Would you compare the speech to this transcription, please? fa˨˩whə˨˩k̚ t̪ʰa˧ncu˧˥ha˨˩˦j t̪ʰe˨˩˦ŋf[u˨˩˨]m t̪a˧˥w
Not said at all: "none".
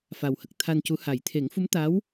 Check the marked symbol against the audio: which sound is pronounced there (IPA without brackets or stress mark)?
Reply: u˧˥